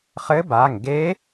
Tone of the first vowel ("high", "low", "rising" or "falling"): rising